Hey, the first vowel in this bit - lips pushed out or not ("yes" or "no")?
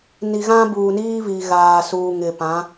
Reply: no